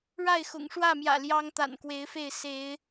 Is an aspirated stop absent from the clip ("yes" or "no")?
yes